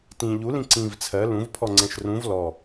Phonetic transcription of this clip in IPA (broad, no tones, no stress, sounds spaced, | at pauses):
t ĩ ʎ u l ĩ ǀ ĩ v t͡sʰ ɜ l ũ v pʰ ɔ ŋ͡ǀ ɛ̃ ʃ r ũ v l ɔ